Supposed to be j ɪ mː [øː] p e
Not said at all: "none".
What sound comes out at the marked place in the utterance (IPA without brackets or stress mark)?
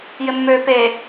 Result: øː